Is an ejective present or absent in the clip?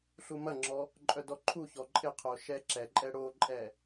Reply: present